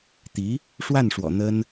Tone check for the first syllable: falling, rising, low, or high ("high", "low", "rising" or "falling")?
rising